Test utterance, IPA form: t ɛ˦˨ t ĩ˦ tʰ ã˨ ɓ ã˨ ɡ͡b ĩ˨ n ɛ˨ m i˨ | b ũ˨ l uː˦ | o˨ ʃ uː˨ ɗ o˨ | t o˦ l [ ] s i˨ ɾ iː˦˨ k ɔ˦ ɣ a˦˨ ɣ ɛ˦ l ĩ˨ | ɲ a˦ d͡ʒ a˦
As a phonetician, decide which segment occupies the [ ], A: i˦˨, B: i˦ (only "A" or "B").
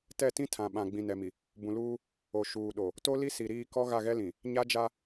B